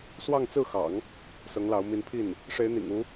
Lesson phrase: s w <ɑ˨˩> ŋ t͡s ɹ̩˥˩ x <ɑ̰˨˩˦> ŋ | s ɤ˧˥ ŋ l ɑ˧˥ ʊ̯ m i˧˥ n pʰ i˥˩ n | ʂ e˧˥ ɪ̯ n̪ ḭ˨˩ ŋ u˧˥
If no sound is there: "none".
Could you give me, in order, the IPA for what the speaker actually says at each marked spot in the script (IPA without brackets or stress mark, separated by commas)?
ɑ˥˧, ɑ̰˨˩˦